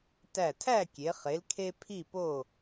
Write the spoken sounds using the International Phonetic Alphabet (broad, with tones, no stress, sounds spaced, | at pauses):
t æ˧˩ tʰ æ˥˨ kʲ e˩˧ χ e˩˧ l kʰ e˦ pʰ i˥˨ p o˥˨